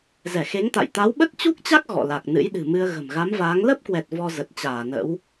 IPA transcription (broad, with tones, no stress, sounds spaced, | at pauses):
z ɛ˧˩ x e˨˦ ŋ t̪ a̰˧˨ j t̪ a˨˦ w ɓ ə˦˥ t̚ t͡ɕ u˦˥ k̚ t͡ɕ a˦˥ k̚ ɣ ɔ̰˧˨ l a˨˩ k̚ n ɨ̰˧˥ j ɗ ɨ̤˨˩ m ɨ˧ ə̯ ɣ ə̤˨˩ m ɣ a˨˦ m v aː˨˦ ŋ l ə˦˥ p̚ k w ɛ˨˩ t̚ v ɔ˧ z ə˨˩ t̚ t͡ɕ aː˧˩ n ə̰˧˥ w